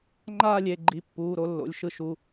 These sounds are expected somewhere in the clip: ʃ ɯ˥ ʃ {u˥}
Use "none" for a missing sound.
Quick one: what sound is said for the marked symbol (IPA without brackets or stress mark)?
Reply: u˩˧˩